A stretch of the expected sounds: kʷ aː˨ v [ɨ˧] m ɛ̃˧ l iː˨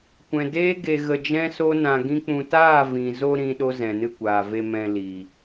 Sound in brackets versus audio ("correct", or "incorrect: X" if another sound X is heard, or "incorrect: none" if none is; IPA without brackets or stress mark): incorrect: e˧